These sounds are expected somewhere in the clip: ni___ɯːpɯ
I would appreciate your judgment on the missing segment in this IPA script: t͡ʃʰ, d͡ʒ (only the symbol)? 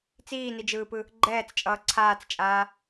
d͡ʒ